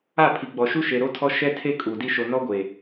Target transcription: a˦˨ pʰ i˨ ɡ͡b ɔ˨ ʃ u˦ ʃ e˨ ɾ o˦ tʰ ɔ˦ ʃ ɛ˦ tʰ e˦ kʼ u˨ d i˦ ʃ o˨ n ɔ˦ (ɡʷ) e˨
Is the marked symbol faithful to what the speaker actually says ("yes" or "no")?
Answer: yes